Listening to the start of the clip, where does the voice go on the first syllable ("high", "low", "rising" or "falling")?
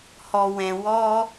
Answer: low